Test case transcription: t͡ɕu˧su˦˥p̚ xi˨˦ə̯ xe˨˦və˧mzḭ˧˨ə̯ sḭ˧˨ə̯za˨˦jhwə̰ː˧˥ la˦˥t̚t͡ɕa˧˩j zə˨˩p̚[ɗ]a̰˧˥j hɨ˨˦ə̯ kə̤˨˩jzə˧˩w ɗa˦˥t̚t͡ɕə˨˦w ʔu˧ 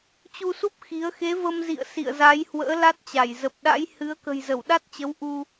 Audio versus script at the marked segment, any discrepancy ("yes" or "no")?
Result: no